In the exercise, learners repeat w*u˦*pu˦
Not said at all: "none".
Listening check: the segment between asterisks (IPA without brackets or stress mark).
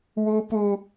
u˦